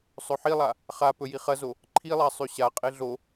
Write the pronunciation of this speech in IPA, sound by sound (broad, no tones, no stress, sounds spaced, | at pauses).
sˤ ɵ ħ i lˠ a | χ a p ɵ j i χ ɐ z o | ǃʰ i lˠ a sˤ ʉ ɕ a qʼ e ɮ o